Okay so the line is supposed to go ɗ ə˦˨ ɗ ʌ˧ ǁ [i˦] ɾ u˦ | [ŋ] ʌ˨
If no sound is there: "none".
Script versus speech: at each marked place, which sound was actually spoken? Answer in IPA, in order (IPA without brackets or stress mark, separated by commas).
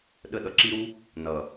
i˦, n